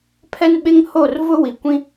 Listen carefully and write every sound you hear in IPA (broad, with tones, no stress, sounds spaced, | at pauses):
pʰ ɛ˦ n ɓ ɪ˦ ŋ h o˦˨ r v ʊ˦ w i˨ kʷ ĩ˦